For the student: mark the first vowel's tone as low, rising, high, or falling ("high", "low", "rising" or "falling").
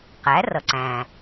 rising